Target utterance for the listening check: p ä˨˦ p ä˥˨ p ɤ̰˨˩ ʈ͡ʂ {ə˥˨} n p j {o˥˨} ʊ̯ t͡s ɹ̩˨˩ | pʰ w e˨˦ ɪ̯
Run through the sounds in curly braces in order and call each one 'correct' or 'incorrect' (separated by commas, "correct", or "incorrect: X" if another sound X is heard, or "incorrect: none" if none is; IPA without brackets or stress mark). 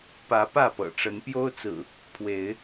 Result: incorrect: ə˨˦, incorrect: o˦